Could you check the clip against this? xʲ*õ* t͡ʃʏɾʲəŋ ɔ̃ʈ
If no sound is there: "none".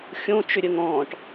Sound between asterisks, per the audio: õ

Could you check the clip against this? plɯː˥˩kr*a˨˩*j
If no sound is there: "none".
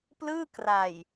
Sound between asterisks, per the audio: a˨˩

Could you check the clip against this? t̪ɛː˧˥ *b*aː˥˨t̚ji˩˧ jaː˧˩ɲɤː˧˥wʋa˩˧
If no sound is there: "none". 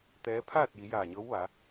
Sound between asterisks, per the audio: pʰ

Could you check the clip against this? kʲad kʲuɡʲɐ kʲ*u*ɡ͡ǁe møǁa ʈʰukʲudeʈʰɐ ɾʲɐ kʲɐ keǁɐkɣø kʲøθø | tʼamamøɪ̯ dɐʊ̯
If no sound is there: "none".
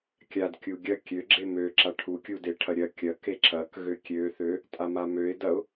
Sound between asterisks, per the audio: ø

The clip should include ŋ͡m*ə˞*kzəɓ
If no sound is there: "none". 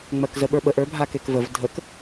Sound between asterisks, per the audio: ɜ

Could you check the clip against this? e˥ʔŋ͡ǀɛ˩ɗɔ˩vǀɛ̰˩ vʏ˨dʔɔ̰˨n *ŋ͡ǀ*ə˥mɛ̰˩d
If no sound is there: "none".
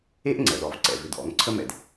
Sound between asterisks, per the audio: ǀʰ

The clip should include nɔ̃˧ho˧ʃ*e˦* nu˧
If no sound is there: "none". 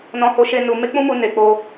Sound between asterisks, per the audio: e˧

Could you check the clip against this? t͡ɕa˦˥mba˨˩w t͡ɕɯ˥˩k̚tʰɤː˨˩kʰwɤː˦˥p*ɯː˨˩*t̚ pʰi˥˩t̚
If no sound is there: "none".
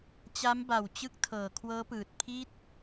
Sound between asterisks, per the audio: ɯː˨˩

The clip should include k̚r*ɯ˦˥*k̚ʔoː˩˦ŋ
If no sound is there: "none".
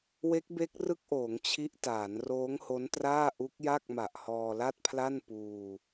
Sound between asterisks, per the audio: ɯ˦˥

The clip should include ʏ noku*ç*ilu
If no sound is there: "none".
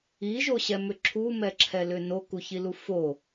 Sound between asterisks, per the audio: ç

